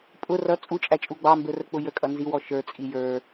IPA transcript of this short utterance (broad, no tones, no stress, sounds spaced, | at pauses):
pʼ ʊ r ʌ t͡sʼ u t͡ʃʼ æ t͡ʃʼ u ɡ͡b ɑ m b ə˞ r ə k͡p ʊ j ə kʼ ʌ n z i w ɔ ʃ ə˞ t͡sʼ i j ə˞